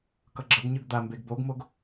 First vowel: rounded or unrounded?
unrounded